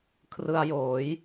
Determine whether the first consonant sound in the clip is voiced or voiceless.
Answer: voiceless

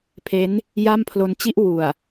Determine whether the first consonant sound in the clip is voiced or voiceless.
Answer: voiceless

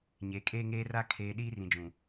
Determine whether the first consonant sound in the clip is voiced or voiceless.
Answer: voiced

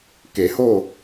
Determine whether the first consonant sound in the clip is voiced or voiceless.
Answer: voiceless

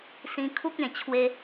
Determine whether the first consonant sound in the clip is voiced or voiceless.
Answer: voiceless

